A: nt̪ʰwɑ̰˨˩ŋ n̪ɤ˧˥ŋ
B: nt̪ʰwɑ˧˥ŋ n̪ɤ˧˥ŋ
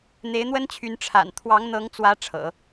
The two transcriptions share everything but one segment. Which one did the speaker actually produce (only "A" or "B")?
B